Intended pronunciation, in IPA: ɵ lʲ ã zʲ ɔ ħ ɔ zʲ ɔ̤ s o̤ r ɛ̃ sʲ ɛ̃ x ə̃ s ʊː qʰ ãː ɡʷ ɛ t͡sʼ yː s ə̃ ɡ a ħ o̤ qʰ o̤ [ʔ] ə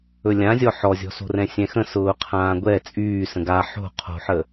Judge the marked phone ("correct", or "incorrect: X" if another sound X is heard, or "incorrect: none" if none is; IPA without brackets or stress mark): incorrect: ħ